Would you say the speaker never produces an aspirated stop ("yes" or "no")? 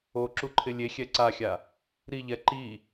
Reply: no